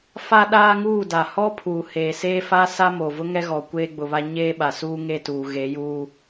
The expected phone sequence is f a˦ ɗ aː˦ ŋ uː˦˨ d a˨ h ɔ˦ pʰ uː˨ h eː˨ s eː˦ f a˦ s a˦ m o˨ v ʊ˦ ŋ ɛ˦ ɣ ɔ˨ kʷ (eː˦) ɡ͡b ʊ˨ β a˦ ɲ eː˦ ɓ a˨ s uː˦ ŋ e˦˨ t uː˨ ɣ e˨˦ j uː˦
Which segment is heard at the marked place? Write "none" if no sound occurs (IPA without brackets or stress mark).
eː˦